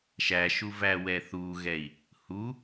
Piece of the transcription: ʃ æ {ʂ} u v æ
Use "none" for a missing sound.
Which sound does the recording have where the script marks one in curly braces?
ʃ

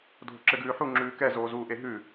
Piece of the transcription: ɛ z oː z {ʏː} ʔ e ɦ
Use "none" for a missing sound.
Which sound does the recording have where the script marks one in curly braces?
uː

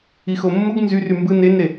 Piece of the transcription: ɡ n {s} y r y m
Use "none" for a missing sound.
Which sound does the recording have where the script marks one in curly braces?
z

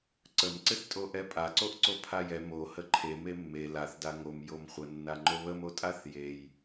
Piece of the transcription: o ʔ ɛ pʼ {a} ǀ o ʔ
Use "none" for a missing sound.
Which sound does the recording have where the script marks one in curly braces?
a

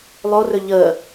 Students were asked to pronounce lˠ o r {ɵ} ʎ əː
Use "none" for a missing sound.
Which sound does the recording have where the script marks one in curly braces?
ɵ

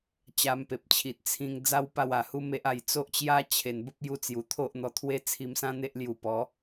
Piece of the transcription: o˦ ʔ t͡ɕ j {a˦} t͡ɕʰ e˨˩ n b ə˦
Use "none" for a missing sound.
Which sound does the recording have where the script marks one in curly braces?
a˦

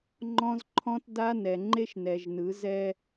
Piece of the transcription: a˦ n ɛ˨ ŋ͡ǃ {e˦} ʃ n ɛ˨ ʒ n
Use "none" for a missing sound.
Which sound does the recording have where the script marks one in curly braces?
e˦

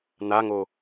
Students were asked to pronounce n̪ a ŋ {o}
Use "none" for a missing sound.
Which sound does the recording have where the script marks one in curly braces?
o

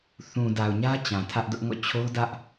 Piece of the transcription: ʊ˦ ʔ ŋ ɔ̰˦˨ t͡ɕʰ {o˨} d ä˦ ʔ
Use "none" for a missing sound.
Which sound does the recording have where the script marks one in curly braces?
o˦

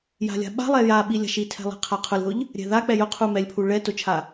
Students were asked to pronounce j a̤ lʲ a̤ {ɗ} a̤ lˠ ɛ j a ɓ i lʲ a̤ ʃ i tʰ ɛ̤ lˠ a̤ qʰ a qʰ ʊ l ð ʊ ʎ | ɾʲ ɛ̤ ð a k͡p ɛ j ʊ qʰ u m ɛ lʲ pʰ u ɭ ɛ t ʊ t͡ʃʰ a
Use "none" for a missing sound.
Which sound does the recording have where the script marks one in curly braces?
ɓ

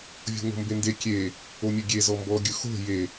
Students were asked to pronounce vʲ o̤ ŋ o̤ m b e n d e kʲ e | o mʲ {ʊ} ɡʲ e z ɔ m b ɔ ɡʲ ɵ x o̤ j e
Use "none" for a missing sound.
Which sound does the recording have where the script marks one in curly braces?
ɵ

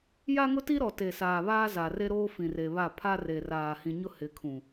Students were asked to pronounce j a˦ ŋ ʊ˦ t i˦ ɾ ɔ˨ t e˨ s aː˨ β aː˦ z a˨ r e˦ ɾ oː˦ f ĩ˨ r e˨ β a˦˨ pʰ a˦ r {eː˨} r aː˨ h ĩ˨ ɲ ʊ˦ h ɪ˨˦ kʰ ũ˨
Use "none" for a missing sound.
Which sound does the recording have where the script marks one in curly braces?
e˨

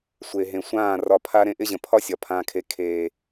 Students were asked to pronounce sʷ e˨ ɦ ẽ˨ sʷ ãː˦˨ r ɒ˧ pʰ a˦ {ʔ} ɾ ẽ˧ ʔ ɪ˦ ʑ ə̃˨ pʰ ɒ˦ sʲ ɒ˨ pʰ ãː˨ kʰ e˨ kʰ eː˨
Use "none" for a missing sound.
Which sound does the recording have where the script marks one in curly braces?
none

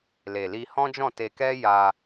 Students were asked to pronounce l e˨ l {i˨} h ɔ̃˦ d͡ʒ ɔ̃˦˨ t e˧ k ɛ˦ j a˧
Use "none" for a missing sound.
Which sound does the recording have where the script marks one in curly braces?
i˧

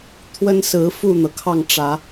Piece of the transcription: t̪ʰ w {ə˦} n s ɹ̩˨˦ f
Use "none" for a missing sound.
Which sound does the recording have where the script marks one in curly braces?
ə˦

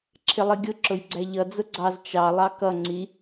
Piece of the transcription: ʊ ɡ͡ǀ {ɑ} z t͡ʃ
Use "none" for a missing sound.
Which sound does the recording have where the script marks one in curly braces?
ɑ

